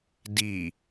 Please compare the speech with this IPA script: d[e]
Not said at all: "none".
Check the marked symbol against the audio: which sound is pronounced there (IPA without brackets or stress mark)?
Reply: i